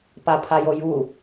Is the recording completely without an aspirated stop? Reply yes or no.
no